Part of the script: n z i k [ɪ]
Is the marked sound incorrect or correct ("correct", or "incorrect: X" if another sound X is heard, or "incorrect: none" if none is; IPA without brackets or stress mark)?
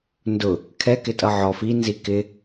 correct